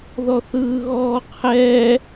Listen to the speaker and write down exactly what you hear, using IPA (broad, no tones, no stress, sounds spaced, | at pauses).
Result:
ð ɔ θ ɯː ɣ ɔː qʰ ɛ